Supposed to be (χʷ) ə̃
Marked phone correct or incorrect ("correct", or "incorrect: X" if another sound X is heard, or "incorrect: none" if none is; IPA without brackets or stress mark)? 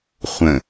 correct